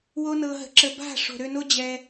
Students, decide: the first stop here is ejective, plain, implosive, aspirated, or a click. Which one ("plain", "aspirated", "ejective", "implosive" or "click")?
click